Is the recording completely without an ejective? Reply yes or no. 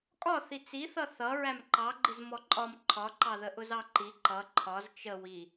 no